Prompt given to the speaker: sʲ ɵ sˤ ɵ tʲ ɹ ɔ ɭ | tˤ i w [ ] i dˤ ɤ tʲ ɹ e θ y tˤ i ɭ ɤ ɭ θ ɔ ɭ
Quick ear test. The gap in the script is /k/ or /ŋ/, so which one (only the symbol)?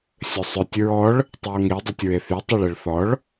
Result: ŋ